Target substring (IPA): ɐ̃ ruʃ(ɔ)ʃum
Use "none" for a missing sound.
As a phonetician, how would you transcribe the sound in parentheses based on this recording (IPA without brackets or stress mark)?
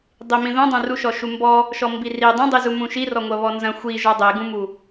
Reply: ɔ